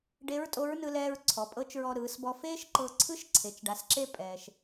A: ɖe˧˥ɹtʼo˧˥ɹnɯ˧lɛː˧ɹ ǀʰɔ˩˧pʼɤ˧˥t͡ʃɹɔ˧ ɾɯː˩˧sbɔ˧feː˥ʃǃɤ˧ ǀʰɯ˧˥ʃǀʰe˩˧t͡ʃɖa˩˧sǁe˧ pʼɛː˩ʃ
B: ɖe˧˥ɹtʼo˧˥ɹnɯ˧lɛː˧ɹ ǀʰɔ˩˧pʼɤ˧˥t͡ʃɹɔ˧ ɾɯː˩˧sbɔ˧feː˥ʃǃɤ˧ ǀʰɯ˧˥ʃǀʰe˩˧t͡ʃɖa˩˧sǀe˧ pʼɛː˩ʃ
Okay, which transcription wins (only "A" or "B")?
A